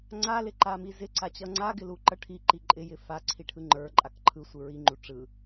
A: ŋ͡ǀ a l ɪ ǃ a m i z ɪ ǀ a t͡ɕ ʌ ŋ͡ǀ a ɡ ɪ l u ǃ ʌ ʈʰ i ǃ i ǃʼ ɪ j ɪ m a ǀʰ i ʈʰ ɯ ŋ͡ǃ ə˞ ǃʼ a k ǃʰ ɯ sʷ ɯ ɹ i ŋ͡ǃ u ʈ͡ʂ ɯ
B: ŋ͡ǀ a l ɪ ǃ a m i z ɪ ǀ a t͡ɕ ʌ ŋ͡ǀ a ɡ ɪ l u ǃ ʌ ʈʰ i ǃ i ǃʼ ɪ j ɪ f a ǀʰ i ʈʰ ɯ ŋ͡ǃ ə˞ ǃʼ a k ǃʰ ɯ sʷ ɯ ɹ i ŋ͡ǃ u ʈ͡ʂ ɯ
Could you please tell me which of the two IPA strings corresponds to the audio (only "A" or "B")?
B